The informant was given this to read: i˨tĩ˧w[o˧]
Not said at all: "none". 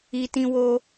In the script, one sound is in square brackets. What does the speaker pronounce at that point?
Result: o˧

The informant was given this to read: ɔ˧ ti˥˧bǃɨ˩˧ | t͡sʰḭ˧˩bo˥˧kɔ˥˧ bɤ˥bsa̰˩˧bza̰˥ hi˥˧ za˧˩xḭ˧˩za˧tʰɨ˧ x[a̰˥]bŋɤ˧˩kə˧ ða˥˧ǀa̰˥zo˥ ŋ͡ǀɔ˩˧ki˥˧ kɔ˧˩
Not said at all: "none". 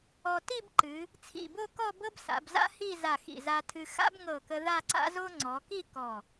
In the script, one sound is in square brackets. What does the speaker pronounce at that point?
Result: a̰˥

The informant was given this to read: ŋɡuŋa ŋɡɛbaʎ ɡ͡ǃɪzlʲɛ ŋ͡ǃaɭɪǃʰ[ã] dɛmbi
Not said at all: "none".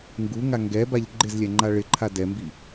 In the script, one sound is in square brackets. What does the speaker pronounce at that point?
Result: a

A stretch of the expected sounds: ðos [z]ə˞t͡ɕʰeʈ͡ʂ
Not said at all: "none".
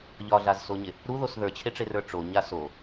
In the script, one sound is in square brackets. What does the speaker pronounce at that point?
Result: ð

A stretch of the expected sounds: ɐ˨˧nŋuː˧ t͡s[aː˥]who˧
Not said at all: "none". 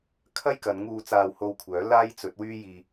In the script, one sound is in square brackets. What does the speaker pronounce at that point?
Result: aː˧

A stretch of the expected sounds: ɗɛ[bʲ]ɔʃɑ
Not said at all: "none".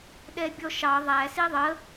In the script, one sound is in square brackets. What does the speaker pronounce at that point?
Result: bʲ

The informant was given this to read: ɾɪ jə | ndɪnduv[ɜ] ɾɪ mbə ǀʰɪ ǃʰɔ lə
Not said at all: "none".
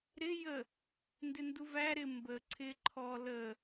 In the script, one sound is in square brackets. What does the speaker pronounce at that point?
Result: æ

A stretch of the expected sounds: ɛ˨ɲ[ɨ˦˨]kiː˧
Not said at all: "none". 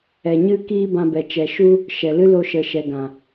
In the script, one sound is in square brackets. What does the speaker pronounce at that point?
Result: ɨ˧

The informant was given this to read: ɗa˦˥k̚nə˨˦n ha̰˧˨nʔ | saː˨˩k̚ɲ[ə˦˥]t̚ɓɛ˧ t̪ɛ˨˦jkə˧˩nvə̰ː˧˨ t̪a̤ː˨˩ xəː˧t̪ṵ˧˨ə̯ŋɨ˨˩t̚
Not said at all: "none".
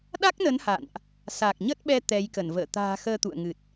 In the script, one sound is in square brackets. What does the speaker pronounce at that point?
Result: ə˦˥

